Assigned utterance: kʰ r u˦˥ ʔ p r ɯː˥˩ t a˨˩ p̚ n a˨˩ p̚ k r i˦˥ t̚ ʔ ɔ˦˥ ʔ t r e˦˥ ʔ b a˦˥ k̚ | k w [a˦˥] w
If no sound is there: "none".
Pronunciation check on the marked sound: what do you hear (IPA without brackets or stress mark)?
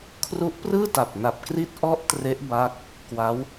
a˦˥